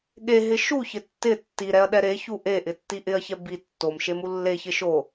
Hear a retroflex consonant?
no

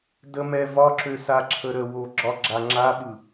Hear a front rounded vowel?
yes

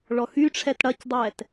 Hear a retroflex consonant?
yes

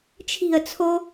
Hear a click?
no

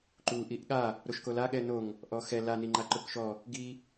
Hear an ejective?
no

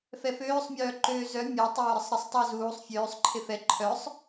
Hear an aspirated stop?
yes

